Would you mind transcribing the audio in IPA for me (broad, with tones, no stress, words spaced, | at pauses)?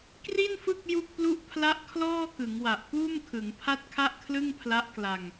kri˥˩nfɯ˥˩k̚ ju˥˩k̚plu˥˩ʔpʰla˥˩ʔ kʰlɔː˥˩kɯ˩˦ŋwa˨˩ʔ puː˥˩mkʰɯ˩˦ŋ pʰa˥˩t̚kʰa˥˩ʔkʰlɯ˥˩ŋpʰla˦˥ʔ kla˧ŋ